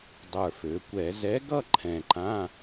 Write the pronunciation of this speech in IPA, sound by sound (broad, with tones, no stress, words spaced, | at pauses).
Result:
dˤə˞˨˩fø˩˧kʷɛ˧˩˧ zɛ˨˥ɡʌ˥˧ ǃʰɛ̃˨˩ǃã˧˥˧